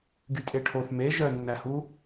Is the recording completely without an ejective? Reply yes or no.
no